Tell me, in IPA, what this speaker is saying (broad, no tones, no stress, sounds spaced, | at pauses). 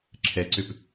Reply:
ǁʰ ɛ ǀ ø p